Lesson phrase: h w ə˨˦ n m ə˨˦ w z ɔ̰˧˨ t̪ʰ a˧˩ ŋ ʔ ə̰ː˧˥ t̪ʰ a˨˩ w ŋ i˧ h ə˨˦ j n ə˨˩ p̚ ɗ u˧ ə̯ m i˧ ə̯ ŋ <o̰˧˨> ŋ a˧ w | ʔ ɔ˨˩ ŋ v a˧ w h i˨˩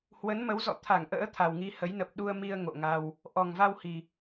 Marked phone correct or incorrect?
correct